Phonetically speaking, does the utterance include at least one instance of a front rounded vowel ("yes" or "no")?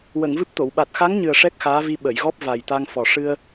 no